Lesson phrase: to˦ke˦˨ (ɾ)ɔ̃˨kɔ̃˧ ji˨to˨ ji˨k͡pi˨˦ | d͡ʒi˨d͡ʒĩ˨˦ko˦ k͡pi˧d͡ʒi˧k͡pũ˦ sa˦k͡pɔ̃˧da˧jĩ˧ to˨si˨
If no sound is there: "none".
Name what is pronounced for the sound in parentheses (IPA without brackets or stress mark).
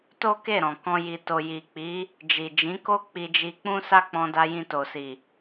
ɾ